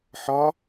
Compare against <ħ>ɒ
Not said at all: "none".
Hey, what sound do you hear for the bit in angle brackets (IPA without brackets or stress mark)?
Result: ħ